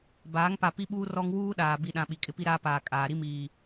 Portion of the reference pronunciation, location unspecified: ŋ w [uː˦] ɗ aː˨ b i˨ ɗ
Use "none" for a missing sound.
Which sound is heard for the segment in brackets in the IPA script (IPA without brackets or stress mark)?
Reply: uː˦